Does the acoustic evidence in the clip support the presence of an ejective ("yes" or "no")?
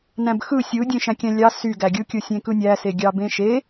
no